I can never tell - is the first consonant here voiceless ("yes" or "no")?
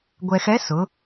no